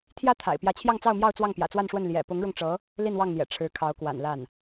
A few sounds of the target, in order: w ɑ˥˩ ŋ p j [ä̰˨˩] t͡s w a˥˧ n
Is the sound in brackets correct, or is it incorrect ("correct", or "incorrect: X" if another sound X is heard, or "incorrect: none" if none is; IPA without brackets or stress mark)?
correct